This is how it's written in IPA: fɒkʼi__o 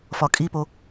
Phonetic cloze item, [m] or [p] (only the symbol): p